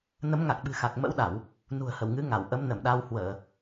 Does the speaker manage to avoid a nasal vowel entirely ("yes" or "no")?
yes